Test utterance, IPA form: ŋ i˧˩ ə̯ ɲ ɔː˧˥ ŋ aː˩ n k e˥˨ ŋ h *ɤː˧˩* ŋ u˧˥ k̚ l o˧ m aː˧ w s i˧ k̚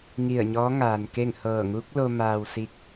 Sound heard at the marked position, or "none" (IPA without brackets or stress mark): ɤː˧˩